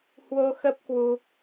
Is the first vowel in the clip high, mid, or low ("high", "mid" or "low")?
mid